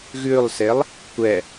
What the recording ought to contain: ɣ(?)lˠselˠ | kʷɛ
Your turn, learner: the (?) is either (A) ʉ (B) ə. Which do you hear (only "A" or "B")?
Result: A